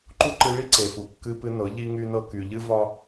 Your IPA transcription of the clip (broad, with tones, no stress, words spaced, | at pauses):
ǃu˦ǃɨ˧ ɭi˦ǀe˨fu˨ kːɨ˧pɨ˧nɤ˨˦ ʎi˦ŋy˦nɤ˦ky˧ ʎɨ˦vɒ˦